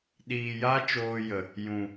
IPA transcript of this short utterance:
ɗiː˨ja˦t͡ʃoː˧jə˨ | jũ˨

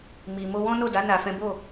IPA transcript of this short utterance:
mi˨ mo˧wɔ̃˦no˦˨ da˨˦ na˧fɛ̃˦ bo˦˨

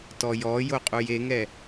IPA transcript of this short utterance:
tɔjɔjoqʼuj eŋɛ

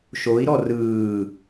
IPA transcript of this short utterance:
ʃoi̯ɾɔ rɯː

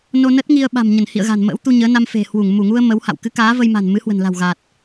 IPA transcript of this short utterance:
no˧nə˦˥t̚ ŋi˧ə̯ ɓa̤˨˩mɲə˧˩nhḭ˧˨ə̯ ɣa̤˨˩nmə̰ː˧˥wt̪u˧ ɲəː˨˦ na˧mfe̤˨˩hwu˧˩ŋ mu˧˩ŋu˧ə̯ mə˨˦wha̰˧˨w kɨ˨˦kaː˨˦və˧jma̤˨˩n mɨ˨˦hwə̤˨˩nla̤˨˩w ɣa˨˩t̚

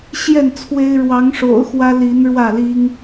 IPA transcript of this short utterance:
ɕjɛ˥˨nt͡sʰwe˦ɪ̯ ɻwɑ˨˦ŋʂo̰˨˩ʊ̯xwä˦ li˨˦nɻwä˥˨li˦ŋ

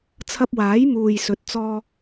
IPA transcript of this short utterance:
t͡sʰɐ˧p̚waː˨˥jmuː˨j sɵ˨t̚t͡sɔː˧

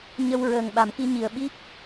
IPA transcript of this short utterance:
ɲə˧w ɹəː˨˩ŋ ɓa˨˩˨mki˧ɲi˨˩ə̯ɓi˦˥p̚

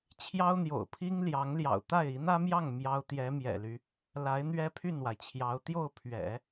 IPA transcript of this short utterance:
t͡ɕʰjɑ˥ʊ̯n̪jo̰˨˩ʊ̯pʰi˥ŋ ljɑ˧˥ŋljɑ̰˨˩ʊ̯ t̪a˥˩ɪ̯ i˧˥n̪ä˥mjɑ˥˩ŋ mjɑ˥ʊ̯ t̪jɛ˧˥mjɛ̰˨˩ly˦ | la˧˥ɪ̯ n̪ɥɛ˥pʰy˥˩nwa˩ɪ̯t͡ɕʰjɑ˧˥ʊ̯ t̪jo˥˩ʊ̯pʰɥɛ̰˨˩˦

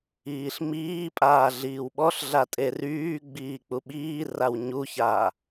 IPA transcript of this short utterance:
iːɬmiːpʼaː ɮiːwɓɔɬɮa tʼeryːɡ͡biː k͡puɓiːraw ɲuçaː

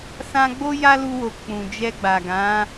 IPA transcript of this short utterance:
sã˦ ɡ͡bo˦ja˦lu˧wo˨ k͡pũ˨ d͡ʒɛ˧ɡ͡ba˨ɡã˨˦

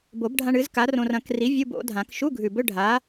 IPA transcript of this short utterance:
bo˨˩˦bɖʱã˧ɳ ɨ˨˥z ka˨˥rõ˧r ɐ̃˨˩˦kri˨˥ vʲu˧˥˧bo̰˨˩˦dʱã˨˩˦k ʃu˧˥˧ɡʱʉ˨˩bɵ˧˥˧ ɖʱa˨˥

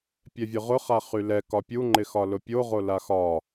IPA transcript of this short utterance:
pʲɛvʲʊʁʊ χaχylɛ kɒpʲu ŋ͡ǃɪxɒlʊpʲo ʁolaxɒ

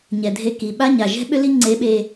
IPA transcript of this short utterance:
ɲɛ˩dʱe˧ki˩ ɓa˥ɲa˩ ʒɛ̤˥ɓʏ˥li˥ ŋ͡ǀe˧˥ɓe˧

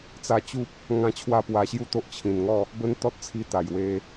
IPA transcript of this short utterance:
t͡sa˧t͡ɕu˦p̚ | ŋã˦t͡ɕʰwa˦pwa˧ɕju˥˧ t̪o˦ʔt͡ɕʰĩ˨˩nŋɔ˥˧ | bə˦nt̪ɔ˦t̚t͡sʰi˧ t̪a˨˩jwe˧

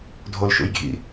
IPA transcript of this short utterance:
dʱolʃṵjɡʱḭ

